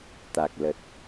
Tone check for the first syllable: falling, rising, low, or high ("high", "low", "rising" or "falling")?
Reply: low